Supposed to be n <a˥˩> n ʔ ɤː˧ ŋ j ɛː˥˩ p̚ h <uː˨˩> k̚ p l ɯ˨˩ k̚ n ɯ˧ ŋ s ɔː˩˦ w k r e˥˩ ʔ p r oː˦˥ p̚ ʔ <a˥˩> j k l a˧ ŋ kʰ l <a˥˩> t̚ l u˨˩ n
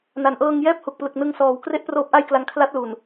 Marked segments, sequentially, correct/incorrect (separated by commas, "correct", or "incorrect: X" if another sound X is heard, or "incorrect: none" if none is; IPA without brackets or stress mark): incorrect: a˩˦, incorrect: u˨˩, correct, incorrect: a˦˥